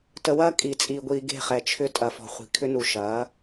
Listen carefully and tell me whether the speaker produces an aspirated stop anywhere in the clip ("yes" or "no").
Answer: yes